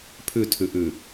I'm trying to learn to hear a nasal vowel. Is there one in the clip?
no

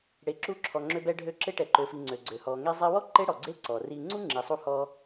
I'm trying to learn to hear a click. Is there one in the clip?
yes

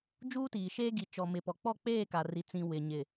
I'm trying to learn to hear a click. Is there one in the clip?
no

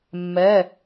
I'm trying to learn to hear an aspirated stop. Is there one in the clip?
no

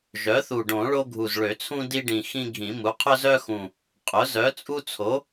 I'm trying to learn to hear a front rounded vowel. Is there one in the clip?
yes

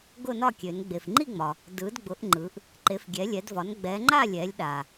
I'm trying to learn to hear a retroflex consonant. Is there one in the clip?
no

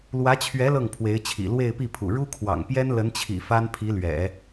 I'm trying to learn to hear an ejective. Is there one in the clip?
no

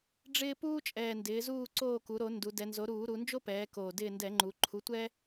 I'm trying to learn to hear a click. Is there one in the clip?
yes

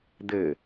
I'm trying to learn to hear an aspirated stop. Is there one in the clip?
no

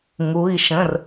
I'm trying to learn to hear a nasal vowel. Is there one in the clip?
yes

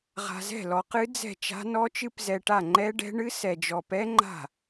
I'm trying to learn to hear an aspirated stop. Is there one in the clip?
no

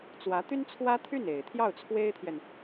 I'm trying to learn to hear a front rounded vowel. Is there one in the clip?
yes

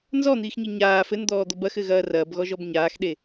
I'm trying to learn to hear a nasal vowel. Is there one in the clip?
no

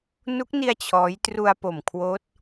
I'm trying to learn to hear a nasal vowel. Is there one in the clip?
no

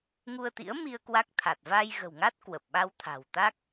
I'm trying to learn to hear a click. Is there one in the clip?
no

